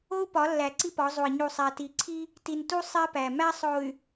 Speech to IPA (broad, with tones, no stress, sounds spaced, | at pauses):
o˦ u̯ p ɒ˨˦ lː æ˨ ǀ i˦ p ɒ˨˦ zˤ u˨ i̯ ɲ u˨ sˤ æ˨ t i˨ ǀʰ i˦ | t i˨ n t u˦ sˤ e˦ p æ˨ m æ˦ sˤ o˨ y̯